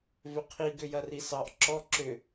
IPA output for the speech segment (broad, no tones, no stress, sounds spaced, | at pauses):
v ʏ qʰ i ɡ ʏ j ɐ r i s ɑ ʔ ǁ ɔ ǁ ʏ